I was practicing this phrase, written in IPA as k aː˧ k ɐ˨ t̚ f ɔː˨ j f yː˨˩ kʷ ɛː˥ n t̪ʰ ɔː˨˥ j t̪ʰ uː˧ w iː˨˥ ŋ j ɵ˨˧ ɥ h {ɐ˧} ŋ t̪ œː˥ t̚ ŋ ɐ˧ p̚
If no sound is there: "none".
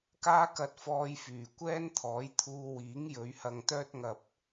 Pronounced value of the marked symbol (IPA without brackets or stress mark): ɐ˧